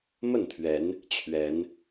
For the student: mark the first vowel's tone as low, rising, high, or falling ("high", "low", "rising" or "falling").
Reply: falling